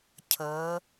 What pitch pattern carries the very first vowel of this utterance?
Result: rising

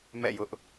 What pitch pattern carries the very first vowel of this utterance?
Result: falling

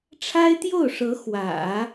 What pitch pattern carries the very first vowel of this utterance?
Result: high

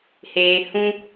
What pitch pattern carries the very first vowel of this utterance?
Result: low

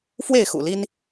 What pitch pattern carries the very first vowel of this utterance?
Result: falling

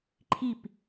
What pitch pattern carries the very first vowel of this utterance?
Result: falling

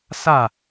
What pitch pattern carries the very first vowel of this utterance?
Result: falling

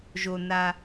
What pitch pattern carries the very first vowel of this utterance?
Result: low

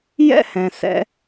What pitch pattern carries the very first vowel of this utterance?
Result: high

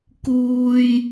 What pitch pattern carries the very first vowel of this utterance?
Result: high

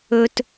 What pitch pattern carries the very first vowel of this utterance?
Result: low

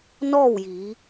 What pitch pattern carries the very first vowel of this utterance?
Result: falling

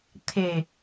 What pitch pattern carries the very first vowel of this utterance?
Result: low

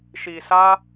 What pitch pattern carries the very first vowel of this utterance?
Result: low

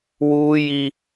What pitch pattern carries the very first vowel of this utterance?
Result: high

